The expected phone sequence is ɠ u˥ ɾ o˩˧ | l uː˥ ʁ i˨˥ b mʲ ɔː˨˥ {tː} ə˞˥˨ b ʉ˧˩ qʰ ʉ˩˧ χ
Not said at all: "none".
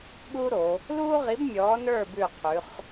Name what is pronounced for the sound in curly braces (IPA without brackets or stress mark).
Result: n